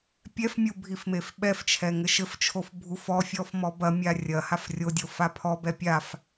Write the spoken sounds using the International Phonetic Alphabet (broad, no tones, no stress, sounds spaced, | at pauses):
pʲ ɛ f mʲ u bʱ i f m e f ɓ ɛ f t͡ʃʰ ɛ ŋ ɘ ʃ ɘ f t͡ʃʰ o f bʱ u f ɔ fʲ ɔ f m ɔ b ɐ mʲ a rʲ ɐ h a f rʲ o dʲ o f a pʰ ɔ b ɛ pʲ a f